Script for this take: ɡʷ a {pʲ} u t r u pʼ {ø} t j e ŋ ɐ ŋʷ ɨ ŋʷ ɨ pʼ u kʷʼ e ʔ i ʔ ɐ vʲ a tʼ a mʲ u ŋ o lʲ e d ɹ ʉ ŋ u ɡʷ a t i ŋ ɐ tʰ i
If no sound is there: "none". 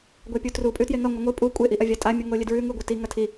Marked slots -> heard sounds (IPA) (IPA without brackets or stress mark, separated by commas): pʲ, ʉ